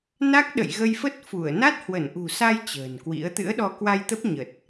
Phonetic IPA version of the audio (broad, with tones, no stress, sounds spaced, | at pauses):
n a˦˥ k̚ ɗ ə̰˧˨ j ɣ ə˧ j f ə˦˥ t̚ f u˧˩ ə̯ n a˦˥ t̚ h w ə˧˩ n ʔ ṳ˨˩ s a˧ j t͡ɕ ə̤ː˨˩ n k w ḭ˧˥ ə̯ t̪ ɨ̰˧˥ ə̯ ɗ ɔ˧ k w a˧ j t̪ ə˦˥ p̚ ɲ ə˨˩ t̚